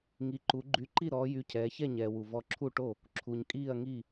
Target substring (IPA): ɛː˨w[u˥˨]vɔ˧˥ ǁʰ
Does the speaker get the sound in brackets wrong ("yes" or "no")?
yes